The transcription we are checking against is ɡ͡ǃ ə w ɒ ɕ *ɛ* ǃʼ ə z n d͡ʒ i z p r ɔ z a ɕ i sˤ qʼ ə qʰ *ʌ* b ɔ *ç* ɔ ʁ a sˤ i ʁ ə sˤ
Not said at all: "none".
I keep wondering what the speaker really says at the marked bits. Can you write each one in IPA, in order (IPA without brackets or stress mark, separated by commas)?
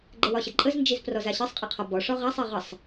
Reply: ə, ɒ, ʂ